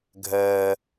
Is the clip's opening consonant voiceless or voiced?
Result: voiced